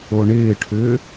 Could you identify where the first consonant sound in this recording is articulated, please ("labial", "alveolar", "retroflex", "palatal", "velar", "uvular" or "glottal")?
retroflex